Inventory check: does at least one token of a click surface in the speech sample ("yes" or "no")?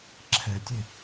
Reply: yes